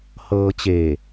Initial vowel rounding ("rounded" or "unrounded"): unrounded